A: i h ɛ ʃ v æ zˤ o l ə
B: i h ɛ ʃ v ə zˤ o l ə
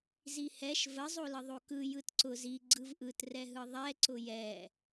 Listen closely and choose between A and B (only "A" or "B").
B